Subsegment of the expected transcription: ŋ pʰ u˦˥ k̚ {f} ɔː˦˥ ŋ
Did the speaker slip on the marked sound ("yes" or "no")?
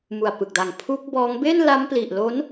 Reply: yes